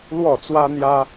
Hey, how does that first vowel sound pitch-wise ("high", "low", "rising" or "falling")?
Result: falling